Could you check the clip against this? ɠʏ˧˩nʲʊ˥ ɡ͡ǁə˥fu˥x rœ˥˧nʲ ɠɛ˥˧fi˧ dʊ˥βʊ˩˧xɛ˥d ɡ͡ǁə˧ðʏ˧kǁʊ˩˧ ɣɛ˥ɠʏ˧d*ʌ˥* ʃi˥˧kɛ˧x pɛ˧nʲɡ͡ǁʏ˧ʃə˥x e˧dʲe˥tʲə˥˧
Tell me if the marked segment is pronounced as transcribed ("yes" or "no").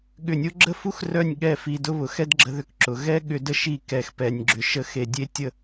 no